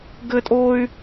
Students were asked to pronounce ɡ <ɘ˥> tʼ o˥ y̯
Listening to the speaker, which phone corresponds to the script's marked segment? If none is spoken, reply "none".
ɘ˥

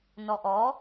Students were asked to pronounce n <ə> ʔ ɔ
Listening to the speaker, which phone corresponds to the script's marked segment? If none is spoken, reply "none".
ɔ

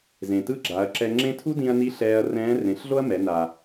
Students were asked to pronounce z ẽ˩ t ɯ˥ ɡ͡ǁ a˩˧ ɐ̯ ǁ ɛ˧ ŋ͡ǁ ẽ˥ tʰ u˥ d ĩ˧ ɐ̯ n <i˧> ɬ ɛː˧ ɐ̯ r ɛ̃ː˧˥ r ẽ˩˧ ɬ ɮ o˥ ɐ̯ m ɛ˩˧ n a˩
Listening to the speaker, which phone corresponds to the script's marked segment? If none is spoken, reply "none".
i˧˥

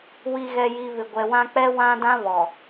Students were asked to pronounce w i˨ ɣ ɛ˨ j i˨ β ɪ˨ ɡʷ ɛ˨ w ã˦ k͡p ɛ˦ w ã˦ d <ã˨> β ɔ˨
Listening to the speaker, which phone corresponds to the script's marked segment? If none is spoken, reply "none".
ã˦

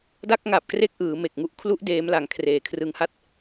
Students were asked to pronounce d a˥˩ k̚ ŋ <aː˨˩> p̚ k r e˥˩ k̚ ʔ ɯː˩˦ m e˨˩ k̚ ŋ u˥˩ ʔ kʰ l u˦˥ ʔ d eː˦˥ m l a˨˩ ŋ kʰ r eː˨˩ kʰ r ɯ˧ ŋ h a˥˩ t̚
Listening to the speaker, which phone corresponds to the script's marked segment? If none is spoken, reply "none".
a˨˩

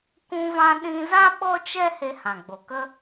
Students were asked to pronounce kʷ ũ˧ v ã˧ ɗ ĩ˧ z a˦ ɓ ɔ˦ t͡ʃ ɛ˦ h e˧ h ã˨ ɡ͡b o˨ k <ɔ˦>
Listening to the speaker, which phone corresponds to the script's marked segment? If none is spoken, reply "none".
ə˦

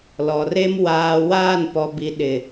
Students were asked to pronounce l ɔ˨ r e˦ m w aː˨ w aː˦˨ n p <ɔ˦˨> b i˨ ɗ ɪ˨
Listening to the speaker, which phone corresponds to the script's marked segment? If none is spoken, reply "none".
ɔ˨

